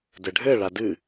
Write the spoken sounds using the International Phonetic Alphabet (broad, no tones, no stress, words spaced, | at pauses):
dɘɖʱɘ ɭadɨ